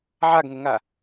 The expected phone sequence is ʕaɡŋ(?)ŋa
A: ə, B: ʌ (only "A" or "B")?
A